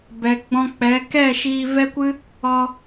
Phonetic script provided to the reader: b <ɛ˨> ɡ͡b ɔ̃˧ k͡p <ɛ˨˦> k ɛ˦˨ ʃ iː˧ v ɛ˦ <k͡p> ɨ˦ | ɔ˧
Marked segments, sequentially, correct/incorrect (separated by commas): correct, correct, incorrect